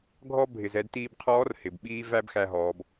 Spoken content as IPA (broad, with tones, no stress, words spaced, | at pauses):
ɡʱɔ˥ bʱɪ˩z ɛ˧dtiː˧bqʰɔː˧˥r hɪ˩b ɓiː˥ væ˥bxæ˧ɦɔː˩˧b